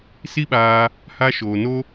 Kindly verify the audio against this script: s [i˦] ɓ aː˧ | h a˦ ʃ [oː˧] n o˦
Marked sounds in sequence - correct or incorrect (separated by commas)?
correct, correct